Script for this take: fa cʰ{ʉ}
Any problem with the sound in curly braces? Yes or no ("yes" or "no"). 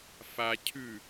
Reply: no